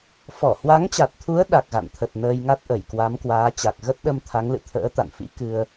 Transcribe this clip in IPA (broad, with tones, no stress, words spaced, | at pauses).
fɔ˧˩hwa˨˦ŋt͡ɕa˨˩t̚t̪ʰu˨˦ə̯ ɗa˨˩k̚ɣa̰˧˨nt̪ʰə˨˩t̚ nəː˧jŋa˦˥t̚ʔə˧˩j kwa˨˦mkwaː˨˦t͡ɕa˨˩k̚ ɣə˦˥t̚ɗə˧m t̪ʰa˨˦ŋlɨ̰˧˨ t̪ʰə̰ː˧˥ t̪a̰˧˨nfḭ˧˥kɨ˧ə̯